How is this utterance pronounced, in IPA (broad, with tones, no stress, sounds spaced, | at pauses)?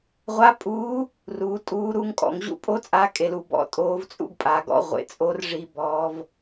ʁʷ a˧˥ pʼ uː˧˥ | r uː˩˧ tʼ uː˧˥ ɾ uː˥ ŋ kʼ ɔ̰˩˧ ŋ ʑ ṵ˥ pʼ o˥ t͡sʼ a˧˥ kʼ e˧ l u˧ b ɔ̰˧ tʼ oː˧˥ v t͡sʼ ṵ˥ ɡ pʼ a˩˧ ɡ ɔ̰˧˥ ʁʷ ḛ˩ t͡sʼ o˧˥ r ʐ i˧ b ɔː˧˥ v